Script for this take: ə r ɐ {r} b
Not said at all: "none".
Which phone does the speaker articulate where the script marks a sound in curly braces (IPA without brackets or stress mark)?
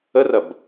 none